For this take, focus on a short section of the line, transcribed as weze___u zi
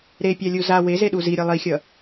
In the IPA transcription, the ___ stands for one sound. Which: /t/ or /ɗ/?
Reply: ɗ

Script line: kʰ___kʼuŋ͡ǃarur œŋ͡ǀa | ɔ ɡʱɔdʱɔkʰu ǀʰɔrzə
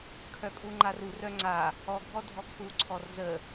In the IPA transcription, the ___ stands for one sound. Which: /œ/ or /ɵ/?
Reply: œ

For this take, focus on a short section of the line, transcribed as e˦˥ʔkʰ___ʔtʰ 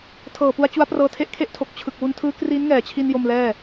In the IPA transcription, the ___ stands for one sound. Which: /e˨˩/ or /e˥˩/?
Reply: e˥˩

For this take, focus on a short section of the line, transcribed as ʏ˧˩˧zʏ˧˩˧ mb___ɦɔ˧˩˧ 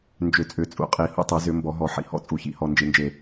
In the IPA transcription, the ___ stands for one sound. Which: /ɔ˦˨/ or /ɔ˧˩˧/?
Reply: ɔ˧˩˧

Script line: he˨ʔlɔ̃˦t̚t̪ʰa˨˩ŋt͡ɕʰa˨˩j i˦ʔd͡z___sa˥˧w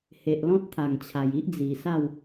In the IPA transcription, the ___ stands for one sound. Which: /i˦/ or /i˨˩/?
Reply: i˨˩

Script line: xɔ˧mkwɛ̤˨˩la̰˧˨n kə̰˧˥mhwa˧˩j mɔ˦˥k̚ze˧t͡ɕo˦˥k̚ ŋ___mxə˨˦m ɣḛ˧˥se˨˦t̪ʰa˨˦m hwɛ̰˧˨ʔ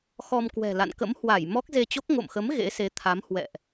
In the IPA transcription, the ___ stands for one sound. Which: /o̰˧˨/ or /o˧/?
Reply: o̰˧˨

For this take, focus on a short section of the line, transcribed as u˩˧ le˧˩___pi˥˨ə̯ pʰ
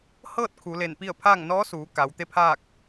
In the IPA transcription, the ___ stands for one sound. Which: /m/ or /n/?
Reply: n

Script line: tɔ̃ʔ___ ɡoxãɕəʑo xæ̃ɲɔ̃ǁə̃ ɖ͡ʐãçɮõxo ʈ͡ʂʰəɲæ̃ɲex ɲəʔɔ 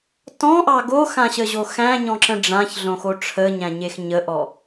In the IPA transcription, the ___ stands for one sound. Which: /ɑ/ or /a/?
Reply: ɑ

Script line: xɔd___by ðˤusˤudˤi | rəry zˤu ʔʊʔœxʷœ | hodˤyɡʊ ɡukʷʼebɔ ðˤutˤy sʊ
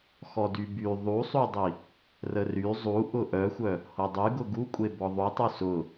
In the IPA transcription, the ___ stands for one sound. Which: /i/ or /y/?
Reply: y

